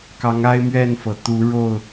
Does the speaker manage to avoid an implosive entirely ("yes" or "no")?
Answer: yes